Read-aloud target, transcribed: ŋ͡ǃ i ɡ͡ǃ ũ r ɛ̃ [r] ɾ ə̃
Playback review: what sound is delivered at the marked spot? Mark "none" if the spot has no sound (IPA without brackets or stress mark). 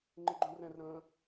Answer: r